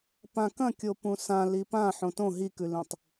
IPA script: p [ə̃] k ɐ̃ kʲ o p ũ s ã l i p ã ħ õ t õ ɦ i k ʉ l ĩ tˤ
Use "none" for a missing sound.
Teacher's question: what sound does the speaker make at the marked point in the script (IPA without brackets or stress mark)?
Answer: ã